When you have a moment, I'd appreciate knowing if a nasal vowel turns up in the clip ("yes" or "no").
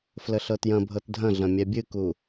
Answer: yes